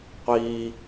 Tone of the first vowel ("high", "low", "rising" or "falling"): high